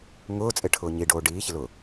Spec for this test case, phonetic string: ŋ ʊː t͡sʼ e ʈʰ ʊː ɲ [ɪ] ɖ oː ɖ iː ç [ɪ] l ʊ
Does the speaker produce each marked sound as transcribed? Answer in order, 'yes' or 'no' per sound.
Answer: no, yes

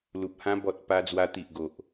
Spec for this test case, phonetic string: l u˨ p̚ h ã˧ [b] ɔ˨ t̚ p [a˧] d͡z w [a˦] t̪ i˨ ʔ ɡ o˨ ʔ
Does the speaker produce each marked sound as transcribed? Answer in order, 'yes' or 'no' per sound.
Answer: yes, yes, no

